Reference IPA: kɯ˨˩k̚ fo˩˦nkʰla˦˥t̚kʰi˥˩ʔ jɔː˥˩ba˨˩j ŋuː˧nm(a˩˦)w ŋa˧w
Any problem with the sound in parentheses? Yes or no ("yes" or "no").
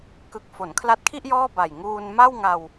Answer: yes